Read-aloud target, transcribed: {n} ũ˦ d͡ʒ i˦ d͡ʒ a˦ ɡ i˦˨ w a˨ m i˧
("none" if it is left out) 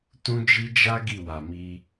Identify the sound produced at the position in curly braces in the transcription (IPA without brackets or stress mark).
t